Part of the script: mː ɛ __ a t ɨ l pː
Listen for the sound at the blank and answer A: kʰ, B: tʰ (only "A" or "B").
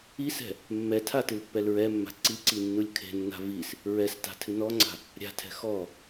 B